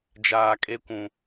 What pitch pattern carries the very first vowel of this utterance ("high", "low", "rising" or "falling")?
low